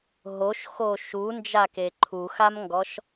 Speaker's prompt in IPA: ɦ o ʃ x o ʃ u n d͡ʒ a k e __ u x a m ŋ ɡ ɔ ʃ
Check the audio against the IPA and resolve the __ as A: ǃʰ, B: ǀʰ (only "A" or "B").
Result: A